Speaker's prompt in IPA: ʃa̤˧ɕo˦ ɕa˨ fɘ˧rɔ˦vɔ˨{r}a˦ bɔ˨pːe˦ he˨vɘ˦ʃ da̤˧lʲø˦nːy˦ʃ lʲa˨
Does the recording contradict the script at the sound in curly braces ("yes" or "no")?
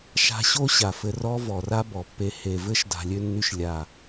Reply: no